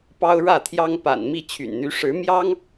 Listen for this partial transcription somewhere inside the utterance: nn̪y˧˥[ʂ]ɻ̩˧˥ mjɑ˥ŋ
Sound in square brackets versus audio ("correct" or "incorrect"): correct